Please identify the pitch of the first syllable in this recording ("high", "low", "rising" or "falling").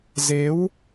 rising